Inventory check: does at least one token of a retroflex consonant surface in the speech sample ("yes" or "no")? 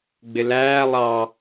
no